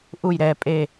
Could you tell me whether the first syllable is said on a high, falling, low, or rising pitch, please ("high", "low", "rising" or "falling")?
falling